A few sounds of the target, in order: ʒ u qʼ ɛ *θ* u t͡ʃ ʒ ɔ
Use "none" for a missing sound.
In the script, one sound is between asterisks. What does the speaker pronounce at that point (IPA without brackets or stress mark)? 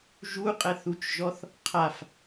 θ